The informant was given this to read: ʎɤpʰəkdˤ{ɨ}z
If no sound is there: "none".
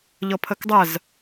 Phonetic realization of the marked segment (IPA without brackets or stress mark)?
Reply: ə